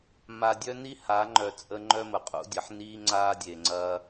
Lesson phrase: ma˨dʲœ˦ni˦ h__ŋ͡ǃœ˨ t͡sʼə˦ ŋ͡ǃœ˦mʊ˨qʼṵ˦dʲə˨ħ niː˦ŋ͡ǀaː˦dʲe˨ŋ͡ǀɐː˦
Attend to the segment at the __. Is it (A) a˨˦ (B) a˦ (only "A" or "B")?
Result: A